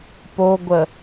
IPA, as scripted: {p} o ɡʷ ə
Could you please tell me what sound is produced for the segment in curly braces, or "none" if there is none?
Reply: p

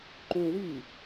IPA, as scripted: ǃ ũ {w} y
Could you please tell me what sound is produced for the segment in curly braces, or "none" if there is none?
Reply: w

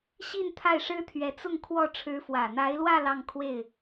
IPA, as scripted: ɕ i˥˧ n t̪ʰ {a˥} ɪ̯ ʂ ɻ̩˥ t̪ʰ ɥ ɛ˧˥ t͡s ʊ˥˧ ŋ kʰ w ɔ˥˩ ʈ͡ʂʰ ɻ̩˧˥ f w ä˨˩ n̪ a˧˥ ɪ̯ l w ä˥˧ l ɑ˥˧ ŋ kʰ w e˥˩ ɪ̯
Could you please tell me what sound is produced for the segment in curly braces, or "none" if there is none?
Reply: a˥˩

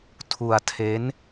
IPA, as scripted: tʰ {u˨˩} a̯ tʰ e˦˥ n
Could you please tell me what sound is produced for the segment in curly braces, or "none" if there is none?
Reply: u˧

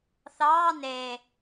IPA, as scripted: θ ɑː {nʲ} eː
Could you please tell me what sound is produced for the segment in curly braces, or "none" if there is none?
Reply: n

